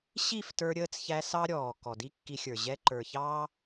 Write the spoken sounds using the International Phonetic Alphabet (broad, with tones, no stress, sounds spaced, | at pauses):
ɕ i˦˨ f t ə˞˧ ɾʲ əː˧ t͡s ç æ˧ s ɑ˦ ɾʲ ɔː˨ k ɔ˨ d i˦ kː i˧ xʲ ə˞˨ ʑ ɛ˧ ǃ ə˞˨ ç ɑː˦